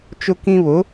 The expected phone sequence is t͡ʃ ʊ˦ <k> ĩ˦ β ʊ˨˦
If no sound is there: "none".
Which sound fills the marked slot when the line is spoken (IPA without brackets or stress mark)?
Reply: k